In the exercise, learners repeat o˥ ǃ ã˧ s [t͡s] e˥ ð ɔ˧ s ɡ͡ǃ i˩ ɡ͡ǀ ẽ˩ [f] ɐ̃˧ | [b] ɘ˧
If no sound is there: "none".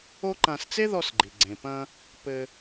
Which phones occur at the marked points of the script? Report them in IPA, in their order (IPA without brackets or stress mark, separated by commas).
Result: t͡s, p, p